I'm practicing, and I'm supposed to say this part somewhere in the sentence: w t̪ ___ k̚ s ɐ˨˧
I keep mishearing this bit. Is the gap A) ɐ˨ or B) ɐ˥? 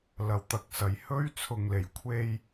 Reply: A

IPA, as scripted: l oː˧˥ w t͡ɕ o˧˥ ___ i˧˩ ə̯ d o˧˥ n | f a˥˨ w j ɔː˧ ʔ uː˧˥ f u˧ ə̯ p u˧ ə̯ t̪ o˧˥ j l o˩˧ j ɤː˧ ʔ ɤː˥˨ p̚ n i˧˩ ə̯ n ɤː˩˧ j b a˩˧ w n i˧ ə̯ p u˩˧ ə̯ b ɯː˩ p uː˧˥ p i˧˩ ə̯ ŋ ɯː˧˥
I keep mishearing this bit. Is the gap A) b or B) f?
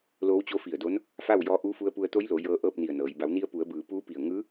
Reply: B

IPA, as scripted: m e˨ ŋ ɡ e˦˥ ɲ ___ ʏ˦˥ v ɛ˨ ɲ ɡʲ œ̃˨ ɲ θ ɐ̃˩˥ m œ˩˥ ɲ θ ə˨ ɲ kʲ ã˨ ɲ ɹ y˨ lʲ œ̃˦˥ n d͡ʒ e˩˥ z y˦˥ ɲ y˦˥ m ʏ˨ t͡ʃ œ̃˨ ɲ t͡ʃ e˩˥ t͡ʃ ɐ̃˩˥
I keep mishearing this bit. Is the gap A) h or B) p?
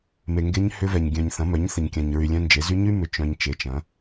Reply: A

